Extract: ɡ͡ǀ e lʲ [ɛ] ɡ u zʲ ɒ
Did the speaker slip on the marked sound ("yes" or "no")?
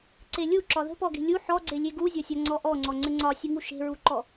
yes